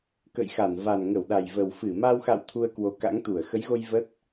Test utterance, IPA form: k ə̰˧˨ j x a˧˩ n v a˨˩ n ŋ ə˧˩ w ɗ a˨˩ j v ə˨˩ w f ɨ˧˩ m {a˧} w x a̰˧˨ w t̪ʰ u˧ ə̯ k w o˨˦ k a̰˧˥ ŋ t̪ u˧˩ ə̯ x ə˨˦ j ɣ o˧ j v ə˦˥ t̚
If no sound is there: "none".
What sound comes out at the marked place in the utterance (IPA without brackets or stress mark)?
a˧